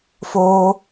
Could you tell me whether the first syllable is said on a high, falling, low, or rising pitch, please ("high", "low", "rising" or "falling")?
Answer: high